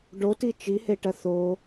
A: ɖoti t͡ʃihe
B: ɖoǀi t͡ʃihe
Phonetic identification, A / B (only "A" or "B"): A